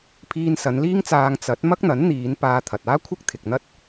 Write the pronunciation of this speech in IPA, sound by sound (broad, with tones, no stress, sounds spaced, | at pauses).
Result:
pʰ iː˧ n s ɐ˨˧ n l iː˥ ŋ t͡s aː˧ ŋ t͡s ɐ˨˥ t̚ m ɐ˥ k̚ n̪ ɐ˨˥ n n̪ iː˨˧ n p aː˧ t̪ʰ ɐ˨ t̚ aː˥ kʷʰ ɪ˥ k̚ t̪ʰ ɪ˨ k̚ n̪ ɐ˥ t̚